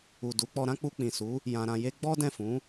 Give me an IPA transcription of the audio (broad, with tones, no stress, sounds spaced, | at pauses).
u˨ d u˨˦ k͡p ɔ˧ ɾ ã˦ k͡p u˧ k͡p ĩ˨ s u˨˦ | j ã˧ ɾ ã˧ j e˦ ɡ͡b ɔ˦ d ɛ̃˦˨ f ũ˨˦